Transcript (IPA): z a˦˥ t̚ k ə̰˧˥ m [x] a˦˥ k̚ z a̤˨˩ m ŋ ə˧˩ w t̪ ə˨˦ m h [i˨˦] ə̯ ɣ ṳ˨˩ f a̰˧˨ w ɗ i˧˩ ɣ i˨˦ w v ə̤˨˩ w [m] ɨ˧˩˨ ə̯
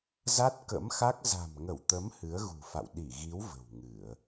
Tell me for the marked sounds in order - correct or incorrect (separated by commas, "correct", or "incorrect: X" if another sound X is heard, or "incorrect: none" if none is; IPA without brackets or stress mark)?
correct, incorrect: ɨ˨˦, incorrect: ŋ